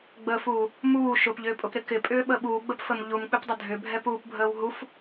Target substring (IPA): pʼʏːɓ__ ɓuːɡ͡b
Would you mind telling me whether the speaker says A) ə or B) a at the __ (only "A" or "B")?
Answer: A